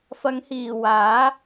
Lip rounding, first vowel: unrounded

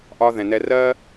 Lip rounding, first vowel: rounded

